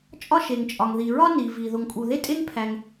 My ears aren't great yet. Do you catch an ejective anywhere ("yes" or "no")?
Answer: yes